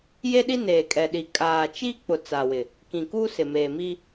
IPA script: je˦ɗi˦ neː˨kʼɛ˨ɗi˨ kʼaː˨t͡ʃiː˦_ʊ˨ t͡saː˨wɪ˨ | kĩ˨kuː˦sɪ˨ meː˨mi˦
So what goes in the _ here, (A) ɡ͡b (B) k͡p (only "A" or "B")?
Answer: B